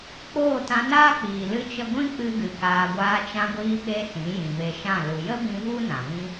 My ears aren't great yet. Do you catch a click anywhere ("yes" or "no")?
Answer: no